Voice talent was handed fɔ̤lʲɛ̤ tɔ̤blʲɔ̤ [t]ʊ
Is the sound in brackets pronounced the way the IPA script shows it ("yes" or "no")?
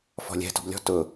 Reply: yes